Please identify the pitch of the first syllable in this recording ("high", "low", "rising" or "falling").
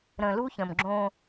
low